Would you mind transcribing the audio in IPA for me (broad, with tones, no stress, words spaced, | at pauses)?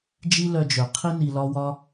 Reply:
d͡ʒi˦ lœ˧d͡ʒœ˨qʰi˦ ni˧lɒ˦ wɒ˦